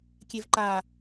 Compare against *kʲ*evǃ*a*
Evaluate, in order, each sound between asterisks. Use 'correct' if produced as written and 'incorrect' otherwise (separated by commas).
correct, correct